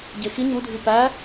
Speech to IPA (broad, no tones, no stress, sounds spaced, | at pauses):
ɟ e x i ɲ u dʱ i p æ